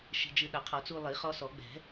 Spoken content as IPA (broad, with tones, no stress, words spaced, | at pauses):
ʃi̤˧d͡ʒɨ˧ ɗa˨˩˦qʰɔ˨˩˦ t͡su˧lˠi˨˩˦χɔ˧ sɔ˨˩˦ɡ͡bɛ̤˨˩˦